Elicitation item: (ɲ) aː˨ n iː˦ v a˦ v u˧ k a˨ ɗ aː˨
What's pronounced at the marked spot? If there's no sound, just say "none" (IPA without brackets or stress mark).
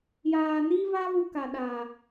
j